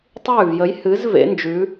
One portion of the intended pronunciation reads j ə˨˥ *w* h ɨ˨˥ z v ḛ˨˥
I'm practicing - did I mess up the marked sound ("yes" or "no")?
yes